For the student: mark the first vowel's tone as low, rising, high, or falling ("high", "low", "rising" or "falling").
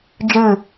falling